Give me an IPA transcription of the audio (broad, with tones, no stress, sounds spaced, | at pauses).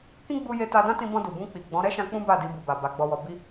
k ĩ˦ ɡ͡b u˧ j e˧ t a˧ d ã˦ t ĩ˧ b ɔ̃˧ d u˨ b ũ˧ k͡p i˨ ɡ͡b ɔ̃˨˦ ɾ ɛ˦ ʃ ã˧ k͡p ũ˦ b a˦˨ d i˧ b u˨ b a˨ b a˧ ɡ͡b ɔ˦ w ɔ˦ b i˦